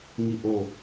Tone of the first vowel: falling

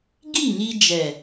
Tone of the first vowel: falling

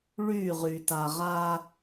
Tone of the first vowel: falling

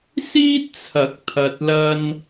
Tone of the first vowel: high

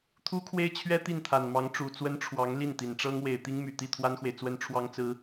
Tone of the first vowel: high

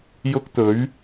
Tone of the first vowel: high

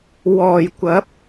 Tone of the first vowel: low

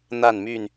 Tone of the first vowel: falling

